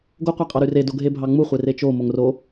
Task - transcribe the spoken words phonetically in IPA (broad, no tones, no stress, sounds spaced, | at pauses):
ɡ o qʷ æ qʼ ɑ ɾ y r e d o ɡʱ e bʱ ɑ ŋ͡m u χʷ e r e t͡ʃ o m o ŋ r o